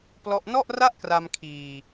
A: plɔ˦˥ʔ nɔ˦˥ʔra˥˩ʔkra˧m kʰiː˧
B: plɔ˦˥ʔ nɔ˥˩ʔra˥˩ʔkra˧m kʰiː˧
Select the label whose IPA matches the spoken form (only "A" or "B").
B